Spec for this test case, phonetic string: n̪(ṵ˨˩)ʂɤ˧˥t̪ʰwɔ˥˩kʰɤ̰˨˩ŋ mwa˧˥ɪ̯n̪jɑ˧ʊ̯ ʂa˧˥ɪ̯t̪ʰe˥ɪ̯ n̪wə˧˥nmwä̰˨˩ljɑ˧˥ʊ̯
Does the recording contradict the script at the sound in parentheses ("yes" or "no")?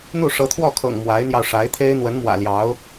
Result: yes